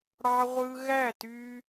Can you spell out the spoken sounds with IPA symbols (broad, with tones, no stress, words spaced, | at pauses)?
ɽɑ˧ʁʷɯ˧ ɣæ˦˨ty˧